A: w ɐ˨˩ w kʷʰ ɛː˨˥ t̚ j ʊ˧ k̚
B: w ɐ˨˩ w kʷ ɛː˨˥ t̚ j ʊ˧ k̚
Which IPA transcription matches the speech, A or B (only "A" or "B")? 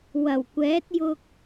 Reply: B